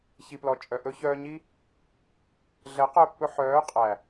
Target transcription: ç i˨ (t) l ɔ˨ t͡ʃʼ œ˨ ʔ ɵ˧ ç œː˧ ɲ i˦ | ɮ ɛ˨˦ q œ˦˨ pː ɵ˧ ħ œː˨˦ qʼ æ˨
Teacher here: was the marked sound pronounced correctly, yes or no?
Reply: no